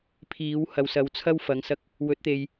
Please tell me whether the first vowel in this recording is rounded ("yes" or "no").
no